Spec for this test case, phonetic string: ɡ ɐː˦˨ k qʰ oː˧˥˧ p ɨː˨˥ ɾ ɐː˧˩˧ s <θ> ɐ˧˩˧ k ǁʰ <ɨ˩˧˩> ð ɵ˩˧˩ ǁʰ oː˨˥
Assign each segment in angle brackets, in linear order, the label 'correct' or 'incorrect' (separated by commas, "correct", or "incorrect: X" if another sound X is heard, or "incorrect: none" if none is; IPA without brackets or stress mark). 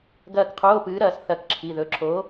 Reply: correct, incorrect: i˩˧˩